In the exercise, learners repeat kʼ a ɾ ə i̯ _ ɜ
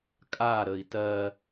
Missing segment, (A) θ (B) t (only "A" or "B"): B